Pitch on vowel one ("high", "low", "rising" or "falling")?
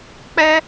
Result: high